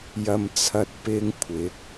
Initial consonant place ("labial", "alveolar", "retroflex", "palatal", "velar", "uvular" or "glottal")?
palatal